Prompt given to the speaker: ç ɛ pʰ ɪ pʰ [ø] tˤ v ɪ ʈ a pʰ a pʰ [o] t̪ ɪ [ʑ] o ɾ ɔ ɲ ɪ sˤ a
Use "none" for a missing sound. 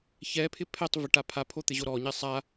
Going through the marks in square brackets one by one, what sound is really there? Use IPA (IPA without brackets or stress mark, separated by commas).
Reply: ɛ, o, ʑ